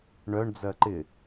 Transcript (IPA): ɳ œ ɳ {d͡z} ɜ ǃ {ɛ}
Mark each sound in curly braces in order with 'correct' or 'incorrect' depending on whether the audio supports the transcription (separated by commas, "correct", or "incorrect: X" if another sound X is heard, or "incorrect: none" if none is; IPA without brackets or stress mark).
correct, incorrect: ɪ